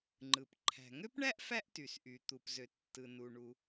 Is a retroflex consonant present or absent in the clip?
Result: present